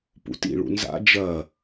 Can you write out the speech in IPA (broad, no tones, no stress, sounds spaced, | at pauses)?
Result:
p ṵ t ḭ ɭ ṵ n z a̰ d͡ʒ ɐ